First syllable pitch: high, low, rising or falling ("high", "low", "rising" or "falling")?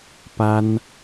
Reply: high